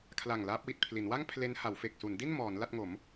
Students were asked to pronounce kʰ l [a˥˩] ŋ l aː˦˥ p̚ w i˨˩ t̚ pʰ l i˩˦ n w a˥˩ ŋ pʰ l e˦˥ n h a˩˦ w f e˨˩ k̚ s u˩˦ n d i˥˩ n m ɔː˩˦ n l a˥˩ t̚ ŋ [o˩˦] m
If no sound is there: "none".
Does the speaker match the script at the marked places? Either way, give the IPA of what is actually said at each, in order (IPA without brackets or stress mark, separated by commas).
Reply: a˨˩, o˩˦